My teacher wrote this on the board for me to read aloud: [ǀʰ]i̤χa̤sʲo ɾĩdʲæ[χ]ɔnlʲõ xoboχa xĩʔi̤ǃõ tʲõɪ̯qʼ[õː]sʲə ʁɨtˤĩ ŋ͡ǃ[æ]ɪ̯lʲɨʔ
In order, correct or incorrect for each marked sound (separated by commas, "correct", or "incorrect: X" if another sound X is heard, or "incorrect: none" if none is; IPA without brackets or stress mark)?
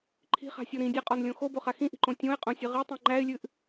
incorrect: ǃʰ, incorrect: qʼ, incorrect: õ, correct